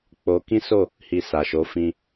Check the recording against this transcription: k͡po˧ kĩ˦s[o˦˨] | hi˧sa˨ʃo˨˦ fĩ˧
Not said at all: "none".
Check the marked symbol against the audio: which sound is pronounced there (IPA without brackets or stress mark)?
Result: o˦˨